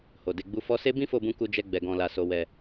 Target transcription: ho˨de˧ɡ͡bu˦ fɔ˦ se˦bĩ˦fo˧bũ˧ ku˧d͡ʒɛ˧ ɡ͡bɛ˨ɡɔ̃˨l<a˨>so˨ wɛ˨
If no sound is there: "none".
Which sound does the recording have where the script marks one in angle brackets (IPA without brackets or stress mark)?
a˨